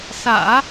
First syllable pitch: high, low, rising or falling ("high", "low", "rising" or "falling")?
low